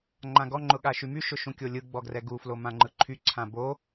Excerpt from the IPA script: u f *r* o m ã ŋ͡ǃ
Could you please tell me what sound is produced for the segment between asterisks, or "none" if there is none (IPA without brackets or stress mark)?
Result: l